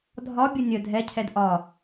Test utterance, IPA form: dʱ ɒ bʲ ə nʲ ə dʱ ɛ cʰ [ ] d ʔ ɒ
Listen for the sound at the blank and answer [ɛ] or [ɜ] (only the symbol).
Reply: ɛ